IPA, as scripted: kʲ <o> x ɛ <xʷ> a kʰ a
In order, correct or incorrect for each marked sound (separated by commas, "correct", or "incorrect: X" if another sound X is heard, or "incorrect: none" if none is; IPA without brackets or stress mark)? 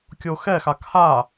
correct, incorrect: x